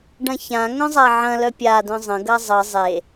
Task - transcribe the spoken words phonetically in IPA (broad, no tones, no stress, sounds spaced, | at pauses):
ɖ ɐ̃ ç ã ŋ œ̃ zˤ a ʕ ɐ̃ l œ pʲ a d œ̃ zˤ ə̃ ɡ ɐ zˤ ə zˤ e